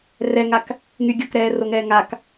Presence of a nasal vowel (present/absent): absent